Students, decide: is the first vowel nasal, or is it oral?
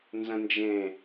nasal